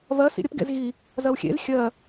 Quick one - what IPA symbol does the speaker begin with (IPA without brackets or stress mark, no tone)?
v